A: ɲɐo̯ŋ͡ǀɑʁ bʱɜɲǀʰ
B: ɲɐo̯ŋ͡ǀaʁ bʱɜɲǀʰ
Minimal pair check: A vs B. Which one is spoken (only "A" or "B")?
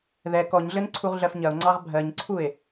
A